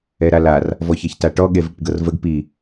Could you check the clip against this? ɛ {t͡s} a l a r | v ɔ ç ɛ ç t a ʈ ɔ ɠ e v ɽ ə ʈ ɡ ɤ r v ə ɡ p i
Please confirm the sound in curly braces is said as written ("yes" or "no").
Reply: no